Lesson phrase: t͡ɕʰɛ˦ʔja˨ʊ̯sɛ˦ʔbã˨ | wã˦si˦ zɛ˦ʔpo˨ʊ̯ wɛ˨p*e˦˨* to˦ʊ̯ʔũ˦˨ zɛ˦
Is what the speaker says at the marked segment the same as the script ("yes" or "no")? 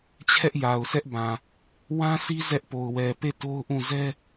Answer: yes